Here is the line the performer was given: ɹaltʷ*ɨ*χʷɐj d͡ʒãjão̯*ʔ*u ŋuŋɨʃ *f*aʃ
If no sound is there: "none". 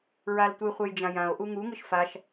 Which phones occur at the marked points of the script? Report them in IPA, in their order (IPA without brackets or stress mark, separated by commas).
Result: ɨ, ʔ, f